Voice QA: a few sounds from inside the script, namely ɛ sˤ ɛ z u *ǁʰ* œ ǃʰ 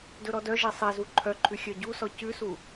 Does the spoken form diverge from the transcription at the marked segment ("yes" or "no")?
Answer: yes